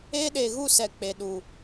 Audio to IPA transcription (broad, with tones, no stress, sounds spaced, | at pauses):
e˦ ɗ e˨ ɣ u˦˨ s ɛ˨ k͡p e˨ ɗ u˨